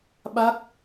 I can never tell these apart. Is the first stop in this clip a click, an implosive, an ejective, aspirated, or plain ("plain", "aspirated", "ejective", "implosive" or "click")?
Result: implosive